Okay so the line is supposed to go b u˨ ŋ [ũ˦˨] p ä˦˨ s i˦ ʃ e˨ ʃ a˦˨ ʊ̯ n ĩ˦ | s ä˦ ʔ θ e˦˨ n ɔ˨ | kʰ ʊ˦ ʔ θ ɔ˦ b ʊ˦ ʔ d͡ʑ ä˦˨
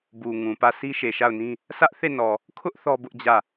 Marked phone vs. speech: incorrect: ũ˨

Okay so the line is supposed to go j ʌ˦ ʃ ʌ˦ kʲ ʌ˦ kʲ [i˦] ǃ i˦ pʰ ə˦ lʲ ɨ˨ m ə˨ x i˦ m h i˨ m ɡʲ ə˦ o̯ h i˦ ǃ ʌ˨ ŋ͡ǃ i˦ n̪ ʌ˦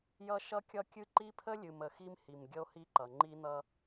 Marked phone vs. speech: incorrect: ɨ˦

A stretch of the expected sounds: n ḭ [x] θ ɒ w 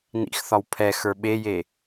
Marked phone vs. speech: correct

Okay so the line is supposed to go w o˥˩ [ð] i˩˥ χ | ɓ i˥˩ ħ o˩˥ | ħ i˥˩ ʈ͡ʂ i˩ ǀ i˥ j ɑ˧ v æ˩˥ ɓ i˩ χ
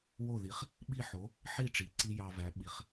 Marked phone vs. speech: correct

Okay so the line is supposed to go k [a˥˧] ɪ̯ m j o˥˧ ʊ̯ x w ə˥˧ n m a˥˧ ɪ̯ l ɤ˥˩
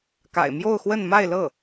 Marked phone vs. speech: incorrect: a̰˨˩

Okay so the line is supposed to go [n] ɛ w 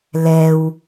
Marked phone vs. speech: incorrect: l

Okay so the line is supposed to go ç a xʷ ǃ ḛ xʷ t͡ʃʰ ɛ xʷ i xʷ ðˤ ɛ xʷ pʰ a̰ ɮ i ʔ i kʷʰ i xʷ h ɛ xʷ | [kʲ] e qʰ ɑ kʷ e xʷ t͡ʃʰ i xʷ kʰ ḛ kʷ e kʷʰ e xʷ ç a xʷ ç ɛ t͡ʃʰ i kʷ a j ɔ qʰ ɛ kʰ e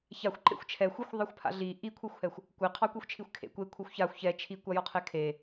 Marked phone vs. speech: incorrect: kʷ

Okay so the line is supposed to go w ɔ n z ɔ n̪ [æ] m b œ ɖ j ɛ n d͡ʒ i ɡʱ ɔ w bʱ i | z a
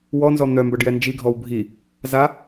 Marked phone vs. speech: incorrect: œ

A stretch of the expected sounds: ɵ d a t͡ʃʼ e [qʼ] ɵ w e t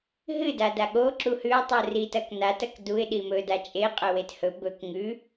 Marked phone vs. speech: correct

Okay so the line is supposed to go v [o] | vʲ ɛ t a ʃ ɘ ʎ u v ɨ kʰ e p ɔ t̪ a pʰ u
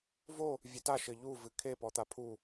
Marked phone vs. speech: correct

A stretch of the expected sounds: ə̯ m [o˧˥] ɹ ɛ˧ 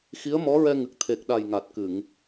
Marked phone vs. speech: incorrect: ɔ˧˥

